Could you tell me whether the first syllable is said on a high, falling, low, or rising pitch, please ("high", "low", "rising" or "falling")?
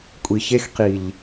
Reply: low